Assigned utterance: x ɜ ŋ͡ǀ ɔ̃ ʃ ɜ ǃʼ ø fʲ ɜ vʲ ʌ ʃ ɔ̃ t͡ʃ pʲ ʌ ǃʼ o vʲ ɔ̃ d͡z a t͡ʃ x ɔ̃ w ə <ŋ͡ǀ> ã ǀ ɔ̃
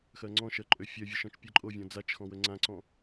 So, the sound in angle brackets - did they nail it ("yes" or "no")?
yes